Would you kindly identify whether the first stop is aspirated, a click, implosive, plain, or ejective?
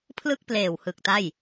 aspirated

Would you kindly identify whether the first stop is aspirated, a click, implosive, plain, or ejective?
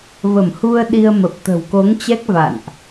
implosive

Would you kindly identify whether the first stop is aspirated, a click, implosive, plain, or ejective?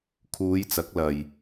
aspirated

